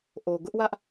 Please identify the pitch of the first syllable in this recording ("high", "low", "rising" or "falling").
low